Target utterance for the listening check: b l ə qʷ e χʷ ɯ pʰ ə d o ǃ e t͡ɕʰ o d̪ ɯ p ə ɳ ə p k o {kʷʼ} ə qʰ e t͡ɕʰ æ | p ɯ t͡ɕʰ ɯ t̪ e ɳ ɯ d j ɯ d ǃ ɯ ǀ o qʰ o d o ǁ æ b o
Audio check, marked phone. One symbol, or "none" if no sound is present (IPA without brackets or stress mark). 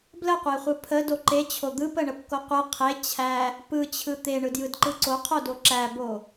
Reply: qʷ